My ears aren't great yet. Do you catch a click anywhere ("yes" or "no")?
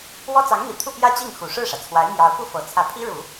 no